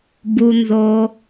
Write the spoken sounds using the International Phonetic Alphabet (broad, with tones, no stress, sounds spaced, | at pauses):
b u˩ n z o˩